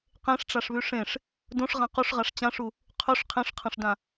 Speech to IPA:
q ẽ ʂ ʈ͡ʂ a ʂ β ʉ ʂ ẽ ʂ | d õ ʂ ʁ ã q u ʂ ʁ a ʂ t͡ɕ ã ʂ u | qʰ ɵ ʂ qʰ ẽ ʂ qʰ ɐ̃ ʂ d ã

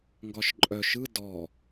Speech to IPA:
ŋ ɡ ɒ ʃ ǃʼ œ ʃ ɯ d ɔ

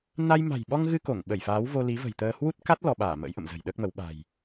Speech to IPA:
n a˧ j m a̤˨˩ j ɓ ɔ˧ ŋ ɣ ɨ˧ k o˧˩ ŋ ɓ ə˧˩ j f aː˨˦ w v o˧ l i˨˦ v ə̤˨˩ j t̪ əː˧ h w u˦˥ t̚ k a˦˥ t̚ l ɔ˧ ɓ aː˧˩ m ə̰ː˧˥ j ʔ ə̰˧˨ m z ə̤˨˩ j ɗ əː˦˥ k̚ m ə˨˦ w ɓ a̤˨˩ j

